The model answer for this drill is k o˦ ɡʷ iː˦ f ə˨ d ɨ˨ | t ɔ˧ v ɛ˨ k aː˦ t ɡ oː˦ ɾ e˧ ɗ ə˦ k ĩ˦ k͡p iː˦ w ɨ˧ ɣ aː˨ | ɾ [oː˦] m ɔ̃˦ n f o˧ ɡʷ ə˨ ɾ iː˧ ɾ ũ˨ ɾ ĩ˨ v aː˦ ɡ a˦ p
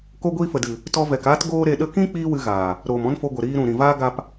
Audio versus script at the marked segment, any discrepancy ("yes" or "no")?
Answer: yes